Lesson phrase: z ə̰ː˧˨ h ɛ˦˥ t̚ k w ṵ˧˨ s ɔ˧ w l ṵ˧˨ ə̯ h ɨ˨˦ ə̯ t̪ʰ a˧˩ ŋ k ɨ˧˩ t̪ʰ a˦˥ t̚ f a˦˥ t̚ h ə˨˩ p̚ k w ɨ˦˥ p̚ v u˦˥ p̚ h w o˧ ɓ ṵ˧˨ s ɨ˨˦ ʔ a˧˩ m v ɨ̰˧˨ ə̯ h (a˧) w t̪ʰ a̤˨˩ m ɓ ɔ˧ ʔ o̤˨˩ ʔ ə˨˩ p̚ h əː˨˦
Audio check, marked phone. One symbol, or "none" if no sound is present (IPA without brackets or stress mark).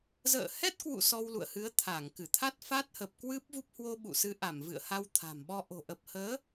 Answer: a˧